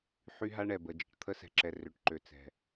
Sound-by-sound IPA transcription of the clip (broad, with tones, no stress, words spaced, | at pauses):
ħy˦ɦa˦ ɳɛ˨ bə˨d͡ʒə̤˨ʈ t̪ʰə˦sɛ̤˨ǁɛ˨ rø˨ʈǃø˨t͡sɛ̤˨